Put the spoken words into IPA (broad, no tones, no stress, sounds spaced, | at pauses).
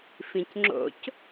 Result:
f ĩ c ŋ͡ǁ o̰ c